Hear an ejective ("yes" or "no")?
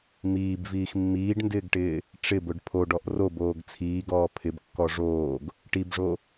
no